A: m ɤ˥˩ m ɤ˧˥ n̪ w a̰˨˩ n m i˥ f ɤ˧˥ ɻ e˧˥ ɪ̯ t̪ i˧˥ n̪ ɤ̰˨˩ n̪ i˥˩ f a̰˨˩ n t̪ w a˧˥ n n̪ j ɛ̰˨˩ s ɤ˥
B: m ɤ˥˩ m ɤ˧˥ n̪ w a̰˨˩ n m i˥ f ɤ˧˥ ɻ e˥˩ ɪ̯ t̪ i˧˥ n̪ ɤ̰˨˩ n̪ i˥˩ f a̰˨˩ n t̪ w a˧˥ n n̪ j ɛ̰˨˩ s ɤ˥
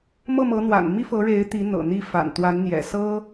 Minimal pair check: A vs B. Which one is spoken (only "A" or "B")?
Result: A